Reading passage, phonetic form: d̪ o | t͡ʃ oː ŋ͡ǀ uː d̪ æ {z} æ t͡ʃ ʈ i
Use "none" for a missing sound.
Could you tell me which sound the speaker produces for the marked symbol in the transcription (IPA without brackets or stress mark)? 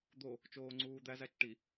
z